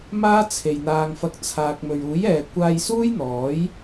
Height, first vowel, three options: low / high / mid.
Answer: low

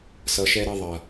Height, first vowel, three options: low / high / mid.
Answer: mid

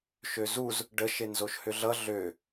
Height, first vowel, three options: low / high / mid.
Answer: mid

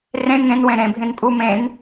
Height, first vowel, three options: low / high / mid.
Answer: mid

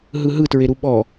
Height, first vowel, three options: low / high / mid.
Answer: high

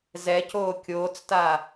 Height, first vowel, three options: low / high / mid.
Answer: mid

